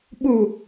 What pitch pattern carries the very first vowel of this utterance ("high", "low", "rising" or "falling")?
low